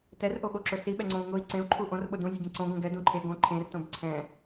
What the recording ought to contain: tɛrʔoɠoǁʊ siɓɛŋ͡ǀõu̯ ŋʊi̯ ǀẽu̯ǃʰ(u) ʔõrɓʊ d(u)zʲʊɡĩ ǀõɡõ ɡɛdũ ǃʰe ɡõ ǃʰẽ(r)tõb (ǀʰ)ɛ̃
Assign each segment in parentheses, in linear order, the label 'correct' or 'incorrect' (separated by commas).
correct, incorrect, correct, correct